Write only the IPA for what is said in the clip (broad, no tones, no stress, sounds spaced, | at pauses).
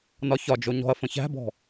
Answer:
n ɒ ç ɒ d͡ʒ o ɲ ɔ̤ ɐ̯ f ə̃ ç æ̤ b ɔ̤